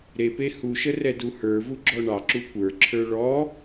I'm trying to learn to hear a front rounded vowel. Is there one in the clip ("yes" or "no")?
no